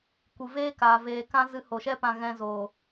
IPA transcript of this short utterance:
kʷɨ˨veː˦kaː˨ veː˨kã˦ zɨ˧ho˨ʃɛ˦ pã˧ɣɛ̃˧zoː˨

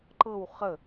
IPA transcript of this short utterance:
ǃɤw χə

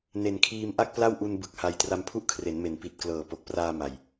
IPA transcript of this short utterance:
ne˨˩nkʰiː˧m ʔa˥˩k̚pla˥˩wʔu˧n bɯ˨˩k̚ha˧j tra˧mpʰu˥˩ʔkʰre˩˦nme˩˦n pi˨˩t̚klɤː˨˩ po˨˩k̚praː˧ ma˨˩j

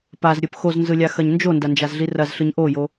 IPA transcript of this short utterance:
pazɾʲɯp xoznzɯlʲaxɐɲ nd͡ʒondɐnd͡ʒazɮi rɐzɬɯɲ ʔojo

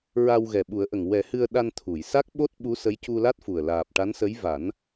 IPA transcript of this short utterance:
ɹa˧w ɣɛ˨˩ɓu˨˩˦ə̯ʔə˨˩ŋ wɛ˨˩˦hɨ˧ə̯ ɗa˧nt̪ʰu˨˩˨jsa˦˥k̚ ɓo˦˥t̚ ɓu˧˥sə˧˥j cu˧la˦˥t̚fu˨˩ə̯ laː˨˩p̚ ʈa˧˥nsə˧˥j va˨˩˦n

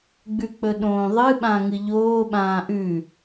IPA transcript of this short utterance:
ɡ͡bʉk͡pɵɗõːðˤɨ ɓãŋɨʎoː ɓãːʔʉ

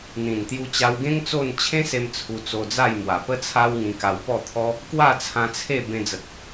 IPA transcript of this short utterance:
n̪ĩ˨˩nt̪ju˧t͡ɕa˧wɡẽ˦ŋ t͡so˥˧n t͡ɕʰẽ˦se˧m t͡sʰu˧t͡so˧d͡za˥˧j mwa˨˩pə˦t͡sʰa˦w ŋĩ˧ka˧wpɔ˥˧t̪ʰɔ˦ | kwa˥˧t͡sʰã˧t͡sʰe˥˧ bẽ˧d͡zə˨k̚

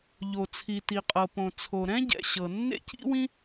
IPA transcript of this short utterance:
ʎo˩t͡sʰi˩ ti˩qʼɤ˩põ˩ t͡sʰo˩ɾɛ̃˥ɟɛ̰˩ ɕɤ˩ nːḛ˥cḭ˥wĩ˥

